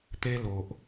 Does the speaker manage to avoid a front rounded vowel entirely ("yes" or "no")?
yes